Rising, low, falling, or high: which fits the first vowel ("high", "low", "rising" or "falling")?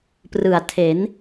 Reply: low